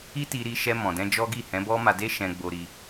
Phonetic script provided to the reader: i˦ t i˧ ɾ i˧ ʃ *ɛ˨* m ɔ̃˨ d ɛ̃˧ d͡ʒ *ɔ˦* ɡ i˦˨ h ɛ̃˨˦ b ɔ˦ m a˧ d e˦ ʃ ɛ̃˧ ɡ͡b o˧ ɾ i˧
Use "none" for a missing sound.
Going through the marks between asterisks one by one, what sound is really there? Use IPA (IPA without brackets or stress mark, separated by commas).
ɛ˧, ɔ˦